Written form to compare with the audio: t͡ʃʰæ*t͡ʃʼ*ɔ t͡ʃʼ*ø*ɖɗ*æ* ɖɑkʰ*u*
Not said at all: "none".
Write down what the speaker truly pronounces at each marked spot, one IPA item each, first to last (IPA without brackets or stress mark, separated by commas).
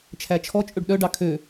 t͡ʃʰ, ø, œ, ø